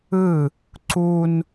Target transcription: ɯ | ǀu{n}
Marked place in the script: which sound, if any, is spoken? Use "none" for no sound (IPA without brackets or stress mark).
n